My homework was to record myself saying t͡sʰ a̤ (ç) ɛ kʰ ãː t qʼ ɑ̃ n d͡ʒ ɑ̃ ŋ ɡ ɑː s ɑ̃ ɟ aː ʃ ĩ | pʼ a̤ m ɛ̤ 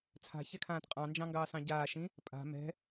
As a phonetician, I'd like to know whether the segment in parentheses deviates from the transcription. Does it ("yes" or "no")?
no